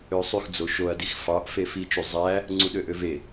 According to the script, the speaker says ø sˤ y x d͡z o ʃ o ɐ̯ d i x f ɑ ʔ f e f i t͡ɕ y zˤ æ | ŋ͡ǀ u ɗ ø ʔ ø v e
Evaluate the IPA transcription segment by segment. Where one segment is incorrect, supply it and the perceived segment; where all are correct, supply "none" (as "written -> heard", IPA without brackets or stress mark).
t͡ɕ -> t͡ʃ